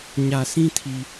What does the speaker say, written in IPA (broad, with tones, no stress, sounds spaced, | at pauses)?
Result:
ɲ ä˨ sʰ ĩ˦ tʰ i˨